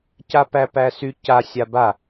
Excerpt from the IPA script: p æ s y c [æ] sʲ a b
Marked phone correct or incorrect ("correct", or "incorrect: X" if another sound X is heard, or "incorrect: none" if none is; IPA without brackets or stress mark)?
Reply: incorrect: a